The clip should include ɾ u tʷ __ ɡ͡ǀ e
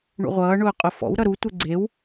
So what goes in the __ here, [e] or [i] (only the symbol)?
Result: e